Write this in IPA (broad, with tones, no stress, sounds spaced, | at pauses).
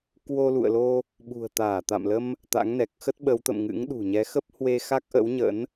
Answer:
k w o˧ l ṵ˧˨ ə̯ l o˧ | ɓ ṳ˨˩ ə̯ t̪ aː˧˩ t̪ a̰˧˨ m l ə˧ m | t̪ a̰˧˥ ŋ n ɛ˨˩ k̚ x ə˦˥ t̚ ɓ ə˨˦ w t̪ ə̰˧˨ m ŋ ɨ̰˧˥ ŋ ɗ ṳ˨˩ ɲ ɛ˨˦ x ə˦˥ p̚ h w e˧ x a˦˥ k̚ ʔ ə̰˧˥ w ɲ ə̰˧˥ n